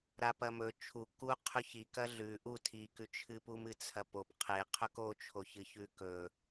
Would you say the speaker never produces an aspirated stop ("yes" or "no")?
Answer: no